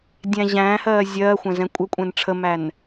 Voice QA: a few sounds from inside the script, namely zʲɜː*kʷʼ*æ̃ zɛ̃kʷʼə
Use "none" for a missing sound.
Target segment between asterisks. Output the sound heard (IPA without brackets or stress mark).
xʷ